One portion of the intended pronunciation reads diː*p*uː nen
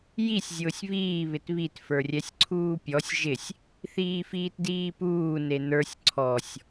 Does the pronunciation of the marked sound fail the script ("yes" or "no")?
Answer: no